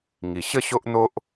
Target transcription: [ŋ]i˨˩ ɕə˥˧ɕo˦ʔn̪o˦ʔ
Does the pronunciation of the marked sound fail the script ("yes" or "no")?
no